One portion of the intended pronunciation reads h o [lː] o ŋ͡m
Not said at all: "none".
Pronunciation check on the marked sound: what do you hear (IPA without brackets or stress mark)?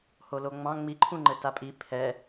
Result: l